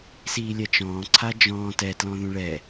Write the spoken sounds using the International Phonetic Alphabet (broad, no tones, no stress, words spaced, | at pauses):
siːlʲɛt͡ʃɔ̃ː ǀʰad͡ʒɔ̃ː tɛtlɔ̃ ðũɭɛ